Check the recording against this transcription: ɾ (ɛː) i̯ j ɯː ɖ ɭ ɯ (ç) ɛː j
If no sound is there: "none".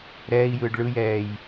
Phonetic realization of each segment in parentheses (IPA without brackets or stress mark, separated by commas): ɛː, j